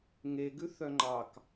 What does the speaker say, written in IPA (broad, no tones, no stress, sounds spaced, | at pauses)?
ŋ e ɡ ʉ θ œ ŋ͡ǃ ɑ k